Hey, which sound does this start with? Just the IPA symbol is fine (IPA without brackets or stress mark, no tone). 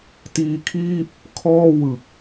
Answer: t